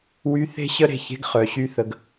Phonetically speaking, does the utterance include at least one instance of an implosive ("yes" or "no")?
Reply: no